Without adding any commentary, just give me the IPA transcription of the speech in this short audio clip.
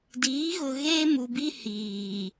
d iː˨˦ ɣ ʊ˨ ɣ eː˦ m u˨ b i˦ h iː˨

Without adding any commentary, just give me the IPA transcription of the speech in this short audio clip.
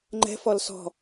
ŋ͡ǃ ɛ̤ f ɔ l s ɔ̤

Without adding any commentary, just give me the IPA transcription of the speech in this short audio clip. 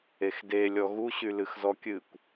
e x d e lʲ ɔ ɣ u ɕ y l ɨ x z ɔ kʲ ɨ kʷ

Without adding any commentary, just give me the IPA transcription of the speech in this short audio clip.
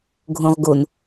ɡʱ õ ʁ ɡ o n

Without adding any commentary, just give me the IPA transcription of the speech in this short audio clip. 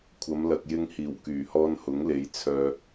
kʷʰ ɐ˨˧ m l ɐ˨ k̚ j ɪ˧ ŋ h iː˨˩ w k yː˨˩ h ɔː˧ n h ʊ˨˥ ŋ l e˨˧ j t͡sʰ œː˨

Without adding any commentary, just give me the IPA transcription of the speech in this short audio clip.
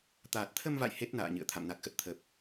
t̪ aː˨˩ t̚ t̪ʰ ə˧ m v a̰˧˨ j h e˦˥ t̚ n a̰ː˧˨ ɲ ɨ̰˧˨ ə̯ t̪ʰ a̰˧˨ m n a˨˩ k̚ x ə˨˩ t̚ t̪ʰ əː˨˩ p̚

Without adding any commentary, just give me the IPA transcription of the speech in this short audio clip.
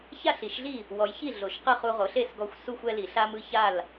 ç a˥˨ ɬ i˨˩˦ ʃ ɮ i˥˨ | w ɔ˨˦ j ç i˥˨ ɮ o˨˩˦ ʃ q ɯ˦ χ u˦ ʁ o˨˦ ɬ e˥˨ s ɡ ɔ˦ xʷ s u˦ xʷ ɛ˦ l i˨˩˦ ɬ a˦ m ɯ˦ ç a˥˨ l

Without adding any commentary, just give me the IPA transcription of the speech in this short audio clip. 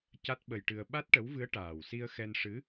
c a˦˥ t̚ ɓ ə˧ j ʈ ɨ˧ ə̯ ɓ a˦˥ t̚ ʈ ə˧˥ w v ɨ˧˥ ə̯ ʈ aː˨˩ w s i˧ ə̯ x ɛ˧ n ʂ ɨ˧˥

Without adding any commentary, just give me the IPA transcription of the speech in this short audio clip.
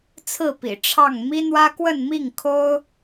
t͡sʰ ɹ̩˥˩ p ḭ˨˩ ʈ͡ʂʰ ɑ˥˩ ŋ m i˥ n̪ w ä˥ k w ə˥˧ n m i˥˩ ŋ kʰ o˥ ʊ̯

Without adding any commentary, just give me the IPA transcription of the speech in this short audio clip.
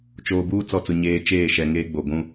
t͡ʃ oː˨ b uː˦ t͡s ɔ˨ t͡s ʊ˨ ɲ eː˨ t͡ʃ eː˦˨ ʃ ɛ˨ ŋ eː˦ ɡ͡b o˨ ɡʷ ũ˦

